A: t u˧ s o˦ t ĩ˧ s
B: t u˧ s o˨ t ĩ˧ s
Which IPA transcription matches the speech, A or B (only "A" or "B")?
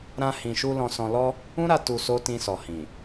A